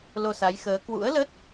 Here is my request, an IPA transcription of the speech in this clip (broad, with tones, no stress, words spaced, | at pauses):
lo˧sa˨˦jxəː˨˦ kwṵ˧˥ə̯lə˦˥t̚